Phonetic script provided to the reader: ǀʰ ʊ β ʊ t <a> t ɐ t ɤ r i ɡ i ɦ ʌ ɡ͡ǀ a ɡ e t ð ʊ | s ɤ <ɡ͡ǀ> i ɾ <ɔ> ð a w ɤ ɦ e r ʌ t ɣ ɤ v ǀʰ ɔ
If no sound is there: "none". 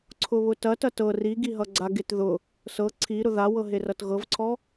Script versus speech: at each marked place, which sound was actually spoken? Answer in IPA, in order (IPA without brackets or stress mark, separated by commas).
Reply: ɐ, ǀʰ, ʊ